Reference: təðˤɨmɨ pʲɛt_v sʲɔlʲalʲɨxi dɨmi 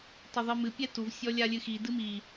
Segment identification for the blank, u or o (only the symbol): u